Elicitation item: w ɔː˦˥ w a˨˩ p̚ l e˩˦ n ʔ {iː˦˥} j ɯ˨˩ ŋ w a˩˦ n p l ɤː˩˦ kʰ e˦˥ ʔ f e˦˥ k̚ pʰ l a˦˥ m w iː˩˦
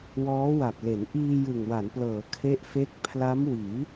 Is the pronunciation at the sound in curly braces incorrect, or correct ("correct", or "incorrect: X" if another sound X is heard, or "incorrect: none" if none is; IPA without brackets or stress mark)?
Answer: incorrect: iː˧